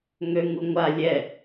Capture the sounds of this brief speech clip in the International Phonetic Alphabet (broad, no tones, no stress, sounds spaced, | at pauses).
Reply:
ŋ ø ŋ u ŋʷ a lʲ ɛ